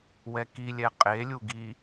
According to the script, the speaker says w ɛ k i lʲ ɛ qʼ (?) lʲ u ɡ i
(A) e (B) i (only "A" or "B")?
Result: A